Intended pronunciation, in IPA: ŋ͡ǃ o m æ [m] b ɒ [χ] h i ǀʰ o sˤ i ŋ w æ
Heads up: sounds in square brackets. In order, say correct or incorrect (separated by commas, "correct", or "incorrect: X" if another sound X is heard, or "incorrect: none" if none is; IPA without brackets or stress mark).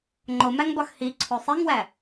incorrect: ŋ, incorrect: x